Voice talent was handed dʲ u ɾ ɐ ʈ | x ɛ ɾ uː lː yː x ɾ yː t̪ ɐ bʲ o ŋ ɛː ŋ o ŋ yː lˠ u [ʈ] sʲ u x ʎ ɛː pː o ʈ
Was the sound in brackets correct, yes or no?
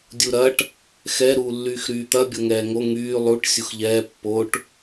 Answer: yes